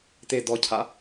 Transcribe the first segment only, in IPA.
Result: t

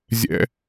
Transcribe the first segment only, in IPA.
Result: zʲ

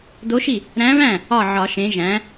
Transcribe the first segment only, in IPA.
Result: d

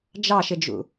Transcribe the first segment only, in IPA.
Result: d͡ʒ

